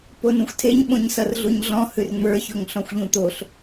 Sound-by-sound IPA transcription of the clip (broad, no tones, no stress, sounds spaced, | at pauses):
p o n ũ xʷ tʰ e ɲ ɓ õ ɲ s ʌ r ɮ u ɲ ɮ ɔ̃ h ʉ r ŋ͡m ə˞ ç o ŋ ɬ ɔ̃ xʷ ʎ ũ t̪ o ɬ